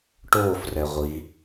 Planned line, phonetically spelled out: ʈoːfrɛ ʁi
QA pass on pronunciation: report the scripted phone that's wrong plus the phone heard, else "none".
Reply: ʁ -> ʁʷ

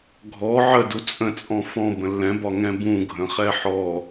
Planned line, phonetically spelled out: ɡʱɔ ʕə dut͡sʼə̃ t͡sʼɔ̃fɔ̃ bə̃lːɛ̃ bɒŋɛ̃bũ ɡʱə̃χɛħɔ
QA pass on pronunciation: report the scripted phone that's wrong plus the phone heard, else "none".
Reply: none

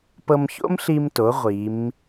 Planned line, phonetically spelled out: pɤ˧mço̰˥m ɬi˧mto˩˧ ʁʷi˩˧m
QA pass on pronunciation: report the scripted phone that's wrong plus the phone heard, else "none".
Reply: none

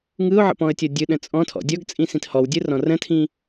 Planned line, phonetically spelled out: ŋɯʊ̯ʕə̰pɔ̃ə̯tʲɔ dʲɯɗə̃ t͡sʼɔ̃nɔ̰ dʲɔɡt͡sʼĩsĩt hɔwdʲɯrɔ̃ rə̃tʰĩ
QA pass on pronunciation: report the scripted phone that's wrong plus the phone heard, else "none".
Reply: n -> tʰ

